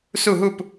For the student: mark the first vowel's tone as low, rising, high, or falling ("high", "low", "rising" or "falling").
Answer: falling